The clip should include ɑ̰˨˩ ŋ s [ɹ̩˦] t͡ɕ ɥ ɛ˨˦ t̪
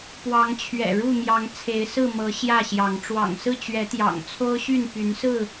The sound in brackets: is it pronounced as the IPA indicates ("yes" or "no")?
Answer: no